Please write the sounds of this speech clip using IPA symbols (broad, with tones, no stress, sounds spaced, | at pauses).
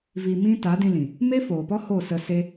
v i˧ m ĩ˦ t a˨˦ d ĩ˧ l ĩ˨ | m e˦ f oː˨ p ɔ˦ h o˦˨ s ə˧ s e˦